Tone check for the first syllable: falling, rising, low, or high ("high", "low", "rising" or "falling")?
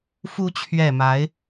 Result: rising